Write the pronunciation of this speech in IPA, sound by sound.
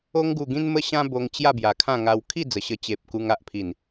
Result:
o˧ ŋ ɡ u˨˩ ɡ ĩ˧ n m ə˥˧ ɕ ã˦ b o˧ ŋ t͡ɕ j a˥˧ b j a˨˩ kʰ ã˥˧ ŋ a˧ w kʰ i˥˧ d͡z ə˨˩ ɕ ə˧ t͡ɕ e˨ p̚ k u˧ ŋ a˨ ʔ pʰ i˨˩ n

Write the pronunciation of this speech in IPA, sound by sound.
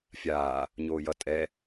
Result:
fʲ aː | ɲ oː j ʌ tʼ ɛ

